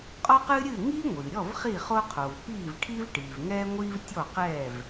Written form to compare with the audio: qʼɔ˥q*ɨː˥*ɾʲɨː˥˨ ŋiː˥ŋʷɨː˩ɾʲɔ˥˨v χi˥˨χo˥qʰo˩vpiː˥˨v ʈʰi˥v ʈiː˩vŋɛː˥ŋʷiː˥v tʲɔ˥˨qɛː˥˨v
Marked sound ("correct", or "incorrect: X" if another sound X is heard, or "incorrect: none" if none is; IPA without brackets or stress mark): correct